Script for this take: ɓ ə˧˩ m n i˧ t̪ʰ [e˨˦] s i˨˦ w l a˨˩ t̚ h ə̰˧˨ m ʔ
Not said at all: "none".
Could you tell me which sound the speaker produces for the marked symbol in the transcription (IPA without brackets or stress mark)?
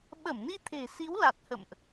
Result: e̤˨˩